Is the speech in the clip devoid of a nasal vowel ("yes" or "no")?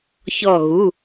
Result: yes